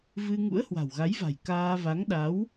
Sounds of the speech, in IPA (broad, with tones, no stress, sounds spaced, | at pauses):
v ɨ˧ ŋ ṵ˧˥ ə̯ h w a̤˨˩ w ɣ a˨˦ j v a̤˨˩ j k aː˧ v a˨˦ ŋ ɗ a˨˦ w